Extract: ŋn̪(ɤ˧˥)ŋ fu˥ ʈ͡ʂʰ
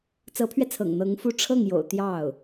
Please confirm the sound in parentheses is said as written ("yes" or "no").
yes